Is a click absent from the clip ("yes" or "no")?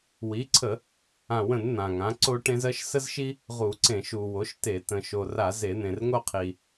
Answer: no